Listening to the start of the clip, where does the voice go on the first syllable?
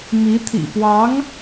rising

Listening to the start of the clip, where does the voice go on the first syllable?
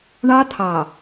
high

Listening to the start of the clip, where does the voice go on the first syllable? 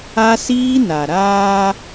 high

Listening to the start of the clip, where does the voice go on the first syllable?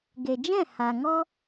low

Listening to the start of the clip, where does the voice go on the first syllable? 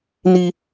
high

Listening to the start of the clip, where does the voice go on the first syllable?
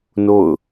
falling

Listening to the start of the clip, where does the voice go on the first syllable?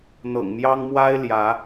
low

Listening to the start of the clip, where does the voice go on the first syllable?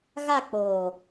falling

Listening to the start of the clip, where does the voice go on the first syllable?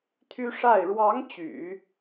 high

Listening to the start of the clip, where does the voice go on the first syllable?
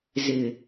low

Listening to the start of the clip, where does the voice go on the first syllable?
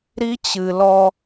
high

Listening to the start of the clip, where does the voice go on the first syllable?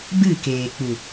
falling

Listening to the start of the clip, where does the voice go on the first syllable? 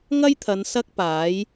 high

